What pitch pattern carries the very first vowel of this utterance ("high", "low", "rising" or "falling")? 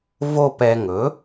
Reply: falling